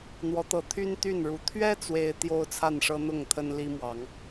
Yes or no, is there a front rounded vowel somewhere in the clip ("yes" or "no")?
yes